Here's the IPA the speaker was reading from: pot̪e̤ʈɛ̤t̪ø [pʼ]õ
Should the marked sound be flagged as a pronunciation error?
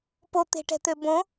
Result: yes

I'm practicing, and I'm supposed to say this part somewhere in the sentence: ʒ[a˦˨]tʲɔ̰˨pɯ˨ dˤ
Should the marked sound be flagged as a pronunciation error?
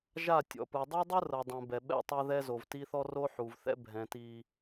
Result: no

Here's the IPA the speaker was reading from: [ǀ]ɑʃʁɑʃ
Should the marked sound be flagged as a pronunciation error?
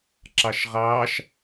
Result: yes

